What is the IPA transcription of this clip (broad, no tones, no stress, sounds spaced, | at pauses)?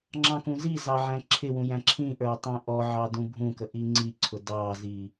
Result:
ŋ͡ǁ ɑ̃ k ũ z i z ɑ ʕ æ̃ ǁʰ ɪ w ũ j æ̃ ǁʰ ĩ ʔ ə˞ i̯ tˤ ɛ̃ ʔ ɔ ʕ ɑ d ũ bʱ ũ k ə ʔ i ŋ͡ǀ i ǀʰ ʊ d ɑ z i